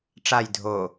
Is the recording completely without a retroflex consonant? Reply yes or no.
no